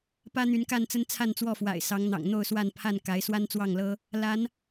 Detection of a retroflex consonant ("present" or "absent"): absent